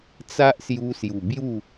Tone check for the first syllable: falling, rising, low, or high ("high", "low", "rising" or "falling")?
high